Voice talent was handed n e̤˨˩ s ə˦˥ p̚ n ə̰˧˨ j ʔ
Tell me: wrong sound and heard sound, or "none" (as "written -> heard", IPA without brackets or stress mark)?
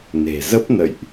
s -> z